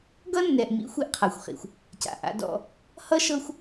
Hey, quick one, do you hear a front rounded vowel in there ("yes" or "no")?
no